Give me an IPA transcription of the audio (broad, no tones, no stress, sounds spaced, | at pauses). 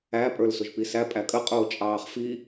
æ pʼ ə˞ l s ʊ ʒ p i s æ pʼ æ kʼ ə qʼ ʊː t͡ʃʼ ɑː χ f i